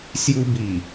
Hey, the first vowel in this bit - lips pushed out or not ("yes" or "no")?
yes